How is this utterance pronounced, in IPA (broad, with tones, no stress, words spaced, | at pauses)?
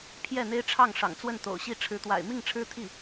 pʰjɛ˥˩n̪e˥ɪ̯ʈ͡ʂʰɑ˥˩ŋ ʂɑ̰˨˩ŋt͡swə˥˩n t̪o̰˨˩ʊ̯ɕi˥˩ ʈ͡ʂʰɻ̩˧˥t̪wa̰˨˩ɪ̯ mi˥˩ŋʈ͡ʂʰɻ̩˥t̪ʰi˥˩